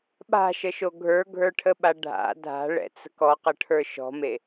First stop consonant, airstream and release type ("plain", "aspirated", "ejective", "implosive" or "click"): implosive